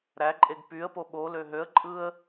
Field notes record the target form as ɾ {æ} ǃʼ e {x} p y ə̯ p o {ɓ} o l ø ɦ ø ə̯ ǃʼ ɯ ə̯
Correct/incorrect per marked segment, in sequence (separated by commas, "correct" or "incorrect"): correct, incorrect, correct